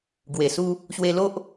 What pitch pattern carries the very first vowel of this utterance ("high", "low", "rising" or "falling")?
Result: low